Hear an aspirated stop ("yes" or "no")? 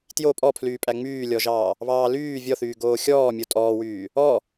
yes